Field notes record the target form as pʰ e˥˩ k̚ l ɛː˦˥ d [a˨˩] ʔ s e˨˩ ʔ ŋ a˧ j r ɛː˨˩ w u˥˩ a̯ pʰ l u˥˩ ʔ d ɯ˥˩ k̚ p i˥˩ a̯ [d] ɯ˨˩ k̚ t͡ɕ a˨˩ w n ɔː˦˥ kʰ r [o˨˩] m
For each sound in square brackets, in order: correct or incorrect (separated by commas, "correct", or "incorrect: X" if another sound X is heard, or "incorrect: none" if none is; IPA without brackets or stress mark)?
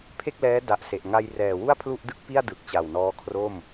correct, correct, incorrect: o˥˩